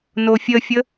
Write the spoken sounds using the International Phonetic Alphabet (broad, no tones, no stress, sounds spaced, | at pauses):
n o fʲ ə fʲ ə